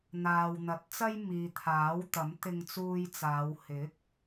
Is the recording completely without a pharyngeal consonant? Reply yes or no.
yes